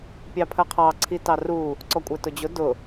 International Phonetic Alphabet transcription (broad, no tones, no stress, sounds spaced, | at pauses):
pʲ ɑ pʰ ɜ qʰ ɑ ǀʰ i t ɑ r u | ǀ ɔ kʷʼ ɛ t ʊ d͡ʑ ʊ d ʊ